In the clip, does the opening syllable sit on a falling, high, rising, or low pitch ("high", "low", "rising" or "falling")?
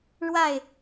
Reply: falling